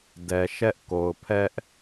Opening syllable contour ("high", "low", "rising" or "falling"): low